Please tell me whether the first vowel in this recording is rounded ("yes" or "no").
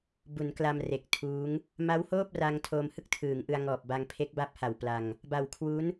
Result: yes